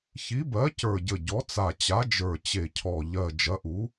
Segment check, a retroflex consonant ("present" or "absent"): absent